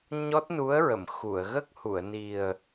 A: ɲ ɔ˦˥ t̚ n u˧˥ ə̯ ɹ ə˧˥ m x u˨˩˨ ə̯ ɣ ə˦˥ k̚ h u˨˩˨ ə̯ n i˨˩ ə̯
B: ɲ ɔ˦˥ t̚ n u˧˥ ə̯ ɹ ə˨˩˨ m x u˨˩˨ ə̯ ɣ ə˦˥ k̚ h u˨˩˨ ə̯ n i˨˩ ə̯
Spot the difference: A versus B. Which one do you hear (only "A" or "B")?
B